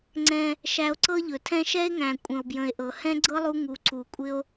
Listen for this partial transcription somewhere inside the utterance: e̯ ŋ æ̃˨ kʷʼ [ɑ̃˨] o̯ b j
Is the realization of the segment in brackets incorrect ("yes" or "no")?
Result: yes